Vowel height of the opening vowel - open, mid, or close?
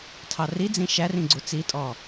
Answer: open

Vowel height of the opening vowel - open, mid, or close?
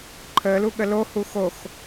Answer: mid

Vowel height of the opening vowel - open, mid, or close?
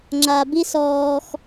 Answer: open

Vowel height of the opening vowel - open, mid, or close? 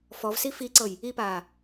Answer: mid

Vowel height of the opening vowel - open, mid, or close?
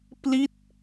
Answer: close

